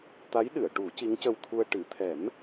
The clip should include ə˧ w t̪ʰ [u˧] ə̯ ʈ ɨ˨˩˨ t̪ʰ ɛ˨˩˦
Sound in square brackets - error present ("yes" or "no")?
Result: no